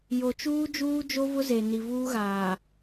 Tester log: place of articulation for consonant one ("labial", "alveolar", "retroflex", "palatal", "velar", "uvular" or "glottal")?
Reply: palatal